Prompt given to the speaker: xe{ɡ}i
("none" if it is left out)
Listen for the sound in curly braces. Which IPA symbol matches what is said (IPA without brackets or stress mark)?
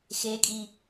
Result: kʼ